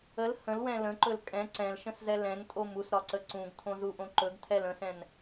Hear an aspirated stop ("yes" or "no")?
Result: yes